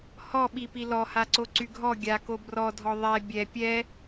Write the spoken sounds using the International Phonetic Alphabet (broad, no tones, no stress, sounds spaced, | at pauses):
h ɔ ɓ i p i l ɔ h a ǀ o ǀ y ɡʱ ɔ ɡʲ a k o b r ɔ dʱ ɔ ðˤ ɛ bʲ ɛ pʲ ɛ